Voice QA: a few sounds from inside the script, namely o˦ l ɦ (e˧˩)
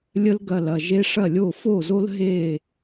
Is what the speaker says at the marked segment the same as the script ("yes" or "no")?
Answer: yes